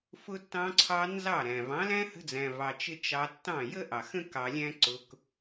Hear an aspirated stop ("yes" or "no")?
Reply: yes